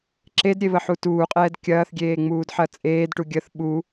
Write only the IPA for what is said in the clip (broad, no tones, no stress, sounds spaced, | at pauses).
ǁ e d ɾʲ e β ə ħ u t uː qʼ ɛː d kʲ ɐː θ ɡʲ eː ŋ͡m uː d ħ ɐ t͡sʼ eː d ʈ u ɡʲ ə θ ɓ u